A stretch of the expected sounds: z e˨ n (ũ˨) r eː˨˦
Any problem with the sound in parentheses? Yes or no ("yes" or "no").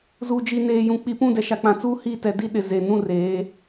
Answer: yes